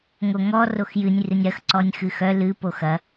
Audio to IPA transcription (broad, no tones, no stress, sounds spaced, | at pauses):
ŋ o ŋ ɔ r o x j ɨ nʲ r ɨ nʲ ɾ ɐ x ǀ ɔ nʲ x ɨ x œ l ɨ p o x ɐ